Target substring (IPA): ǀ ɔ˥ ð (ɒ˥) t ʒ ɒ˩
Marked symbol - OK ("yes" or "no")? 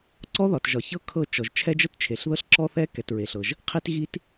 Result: no